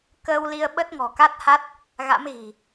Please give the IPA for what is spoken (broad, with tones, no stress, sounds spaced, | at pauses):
k əː˧ w l i˧ ə̯ ɓ ə˦˥ t̚ ŋ ɔ̤˨˩ k a˦˥ t̚ h a˦˥ t̚ | ɣ a̰˧˥ m ɣ i̤˨˩